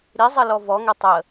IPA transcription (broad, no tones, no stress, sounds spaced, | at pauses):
ɾ i zˤ ə l ɔ v ɔ ŋ ɛ tˤ ə